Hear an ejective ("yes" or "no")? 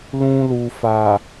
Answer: no